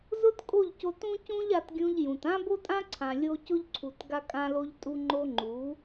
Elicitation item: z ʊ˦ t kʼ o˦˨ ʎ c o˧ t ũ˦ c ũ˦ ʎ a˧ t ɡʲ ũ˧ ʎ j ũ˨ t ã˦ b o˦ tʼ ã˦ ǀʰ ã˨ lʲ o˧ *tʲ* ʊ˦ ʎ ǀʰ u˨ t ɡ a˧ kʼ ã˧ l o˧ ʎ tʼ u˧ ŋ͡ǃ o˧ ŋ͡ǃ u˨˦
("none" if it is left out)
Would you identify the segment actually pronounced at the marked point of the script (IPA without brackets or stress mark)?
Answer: c